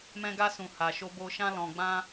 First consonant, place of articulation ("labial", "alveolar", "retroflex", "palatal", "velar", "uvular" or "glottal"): labial